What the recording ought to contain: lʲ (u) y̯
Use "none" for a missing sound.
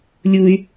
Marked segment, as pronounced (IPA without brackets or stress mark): u